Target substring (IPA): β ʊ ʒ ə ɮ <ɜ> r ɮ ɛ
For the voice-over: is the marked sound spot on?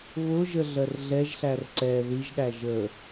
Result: yes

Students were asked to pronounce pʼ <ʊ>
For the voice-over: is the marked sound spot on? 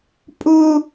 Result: yes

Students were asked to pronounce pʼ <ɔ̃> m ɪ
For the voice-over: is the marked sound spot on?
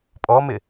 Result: no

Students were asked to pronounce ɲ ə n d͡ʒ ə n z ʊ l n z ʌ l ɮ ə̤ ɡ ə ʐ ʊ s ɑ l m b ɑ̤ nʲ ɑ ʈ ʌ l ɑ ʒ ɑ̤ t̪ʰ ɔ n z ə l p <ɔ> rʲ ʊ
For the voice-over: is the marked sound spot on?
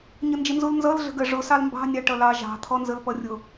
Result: no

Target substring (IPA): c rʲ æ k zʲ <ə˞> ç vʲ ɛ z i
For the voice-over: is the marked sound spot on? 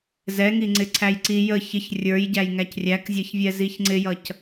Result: no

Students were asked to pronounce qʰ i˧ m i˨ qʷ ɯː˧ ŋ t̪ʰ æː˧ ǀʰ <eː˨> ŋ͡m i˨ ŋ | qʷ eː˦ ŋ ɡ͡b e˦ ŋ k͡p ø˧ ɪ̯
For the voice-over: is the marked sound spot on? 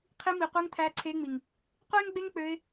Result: no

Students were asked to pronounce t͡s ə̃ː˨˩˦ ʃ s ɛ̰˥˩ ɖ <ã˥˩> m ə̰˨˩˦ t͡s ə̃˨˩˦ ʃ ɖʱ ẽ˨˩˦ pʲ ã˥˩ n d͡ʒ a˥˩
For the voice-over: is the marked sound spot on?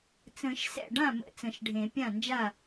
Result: yes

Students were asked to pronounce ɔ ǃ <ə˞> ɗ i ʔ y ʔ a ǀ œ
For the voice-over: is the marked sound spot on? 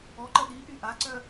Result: no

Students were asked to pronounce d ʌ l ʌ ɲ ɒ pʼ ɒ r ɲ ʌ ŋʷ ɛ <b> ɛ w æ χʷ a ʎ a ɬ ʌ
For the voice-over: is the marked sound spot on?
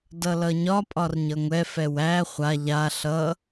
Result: no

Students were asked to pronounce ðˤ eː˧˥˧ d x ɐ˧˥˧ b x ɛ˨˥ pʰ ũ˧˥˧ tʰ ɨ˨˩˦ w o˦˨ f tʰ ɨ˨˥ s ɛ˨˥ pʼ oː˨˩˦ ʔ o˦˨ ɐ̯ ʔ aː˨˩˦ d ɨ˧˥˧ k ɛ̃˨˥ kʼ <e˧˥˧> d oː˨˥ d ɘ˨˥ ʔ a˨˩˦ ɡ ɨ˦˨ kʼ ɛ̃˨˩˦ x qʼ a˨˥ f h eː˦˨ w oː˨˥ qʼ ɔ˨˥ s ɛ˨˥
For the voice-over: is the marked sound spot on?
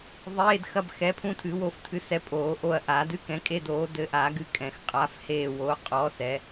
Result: yes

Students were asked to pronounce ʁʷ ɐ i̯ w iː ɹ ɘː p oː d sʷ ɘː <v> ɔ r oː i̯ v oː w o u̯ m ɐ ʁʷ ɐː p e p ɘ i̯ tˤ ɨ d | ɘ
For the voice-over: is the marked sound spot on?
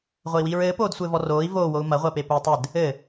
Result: yes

